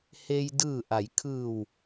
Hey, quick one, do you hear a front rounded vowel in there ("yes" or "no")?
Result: no